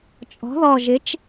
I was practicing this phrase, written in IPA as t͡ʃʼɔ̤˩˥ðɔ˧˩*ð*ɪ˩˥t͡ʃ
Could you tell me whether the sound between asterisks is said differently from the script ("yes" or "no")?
yes